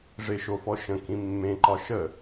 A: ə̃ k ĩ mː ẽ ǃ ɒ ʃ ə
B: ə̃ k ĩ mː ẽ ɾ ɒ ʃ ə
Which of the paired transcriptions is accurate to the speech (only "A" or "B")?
A